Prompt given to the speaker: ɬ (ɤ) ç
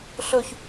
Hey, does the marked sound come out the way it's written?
no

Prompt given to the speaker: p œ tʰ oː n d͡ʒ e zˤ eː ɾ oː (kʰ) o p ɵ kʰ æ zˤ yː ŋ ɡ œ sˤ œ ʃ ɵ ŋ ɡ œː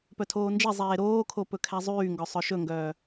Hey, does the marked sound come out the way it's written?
yes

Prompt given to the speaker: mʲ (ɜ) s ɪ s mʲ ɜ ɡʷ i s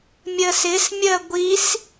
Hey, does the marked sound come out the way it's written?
yes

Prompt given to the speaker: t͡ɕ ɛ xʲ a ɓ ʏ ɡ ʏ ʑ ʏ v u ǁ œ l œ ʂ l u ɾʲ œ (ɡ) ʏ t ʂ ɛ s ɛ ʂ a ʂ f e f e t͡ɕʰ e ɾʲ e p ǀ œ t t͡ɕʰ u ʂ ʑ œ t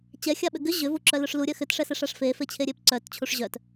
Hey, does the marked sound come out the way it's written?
no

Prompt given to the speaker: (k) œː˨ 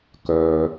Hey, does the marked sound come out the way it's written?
yes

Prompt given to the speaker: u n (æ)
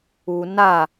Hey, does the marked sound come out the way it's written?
no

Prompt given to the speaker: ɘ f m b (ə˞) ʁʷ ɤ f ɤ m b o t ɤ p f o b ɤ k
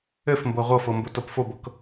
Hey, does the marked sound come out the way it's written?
no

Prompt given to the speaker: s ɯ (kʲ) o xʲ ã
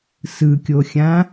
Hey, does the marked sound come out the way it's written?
yes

